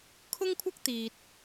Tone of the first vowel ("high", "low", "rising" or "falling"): high